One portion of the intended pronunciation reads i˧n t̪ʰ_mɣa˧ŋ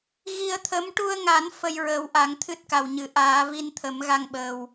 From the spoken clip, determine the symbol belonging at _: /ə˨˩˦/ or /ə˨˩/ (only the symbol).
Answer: ə˨˩˦